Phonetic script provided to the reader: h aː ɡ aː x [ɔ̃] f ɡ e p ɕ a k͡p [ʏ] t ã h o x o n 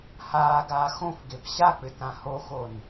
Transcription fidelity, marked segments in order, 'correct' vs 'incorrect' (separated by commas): incorrect, correct